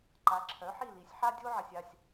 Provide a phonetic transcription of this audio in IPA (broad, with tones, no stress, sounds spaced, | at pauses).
ǃ a˨˥ ǁʰ œ˨˥ ħ i˦˨ l i˨˥ sʲ ħ a˦ dʲ o˦ ʕ ɪ˨ sʲ a˦˨ sʲ